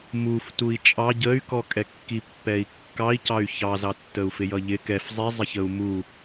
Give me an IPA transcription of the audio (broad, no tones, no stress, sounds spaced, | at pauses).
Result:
m u f t u i̯ t͡ʃʼ ɑ ɟ ə y̯ k ɔ kʼ ɛ kː i pː ɛ i̯ kː ɑ i̯ c ɑ y̯ ç ɑ z ɑ tː ə u̯ f ɪ j ʌ ʎ ɪ k ɛ f zˤ i zˤ ɪ ç ə u̯ m u